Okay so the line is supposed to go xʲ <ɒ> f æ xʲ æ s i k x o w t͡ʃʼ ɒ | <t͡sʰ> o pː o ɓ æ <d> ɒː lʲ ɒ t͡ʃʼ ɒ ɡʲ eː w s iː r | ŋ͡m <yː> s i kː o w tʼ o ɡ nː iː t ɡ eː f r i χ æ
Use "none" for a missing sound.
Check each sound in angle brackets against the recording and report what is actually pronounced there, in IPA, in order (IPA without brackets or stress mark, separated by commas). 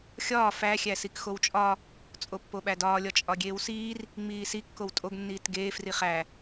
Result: ɒː, t͡sʼ, d, iː